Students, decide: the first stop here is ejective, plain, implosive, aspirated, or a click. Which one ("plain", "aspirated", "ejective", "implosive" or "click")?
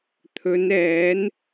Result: aspirated